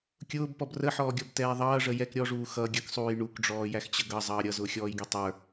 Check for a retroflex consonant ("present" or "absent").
present